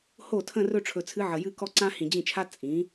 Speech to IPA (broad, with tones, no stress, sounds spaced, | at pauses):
h o˥˩ tʰ ə̃˥˧ r ɵ˥˧ ʈ͡ʂʰ ɵ˨ t͡sʰ ɨ˧˥ ʕ ə˨ j ɨ˥˧ k ɔ˥˧ ǀ ã˥ h ĩ˨ d͡ʑ ĩ˥˩ t͡ʃʰ a˥ t͡sʼ ĩ˩˥